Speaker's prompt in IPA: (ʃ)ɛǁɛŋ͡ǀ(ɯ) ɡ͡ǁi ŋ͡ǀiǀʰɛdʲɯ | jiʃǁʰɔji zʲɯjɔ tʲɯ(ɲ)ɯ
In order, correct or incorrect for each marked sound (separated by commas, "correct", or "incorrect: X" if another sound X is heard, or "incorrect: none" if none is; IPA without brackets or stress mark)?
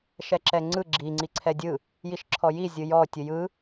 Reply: correct, correct, incorrect: j